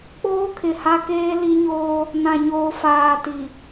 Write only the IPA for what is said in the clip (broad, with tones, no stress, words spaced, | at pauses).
k͡poː˦kʰɪ˨ha˦keː˦ li˦ɲoː˦ | nã˨ɲoː˨ faː˨ti˨